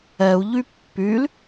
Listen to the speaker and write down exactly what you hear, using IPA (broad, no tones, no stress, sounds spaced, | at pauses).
ɛ u̯ ʎ y pː y l